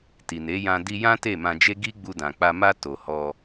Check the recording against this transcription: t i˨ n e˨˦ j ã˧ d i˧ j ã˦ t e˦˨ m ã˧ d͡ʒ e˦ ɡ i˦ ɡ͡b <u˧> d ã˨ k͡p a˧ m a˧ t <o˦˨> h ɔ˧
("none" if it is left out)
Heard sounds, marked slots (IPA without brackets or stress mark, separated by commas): u˧, o˨